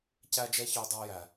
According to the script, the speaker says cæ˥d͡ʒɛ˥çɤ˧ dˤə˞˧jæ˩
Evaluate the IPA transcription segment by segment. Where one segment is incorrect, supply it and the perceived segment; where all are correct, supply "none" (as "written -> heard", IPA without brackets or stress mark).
ɤ˧ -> ə˞˧